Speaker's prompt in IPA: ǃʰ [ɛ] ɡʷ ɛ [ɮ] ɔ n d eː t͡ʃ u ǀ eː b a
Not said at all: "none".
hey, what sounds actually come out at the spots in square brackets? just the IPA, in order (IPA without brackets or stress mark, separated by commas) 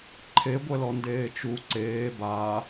e, l